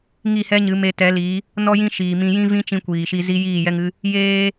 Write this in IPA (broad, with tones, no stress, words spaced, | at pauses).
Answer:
ŋi˦˨hɛ˦ɲɨ˨˦me˧ tɛ˨˦li˨˦ | nɔ˧jĩ˧ ʃiː˨mĩ˧ jĩ˦vĩ˦t͡ʃĩ˧ kʷiː˨ʃi˧ zi˦ jiː˦˨jɛ˦ŋɨ˦ | jeː˧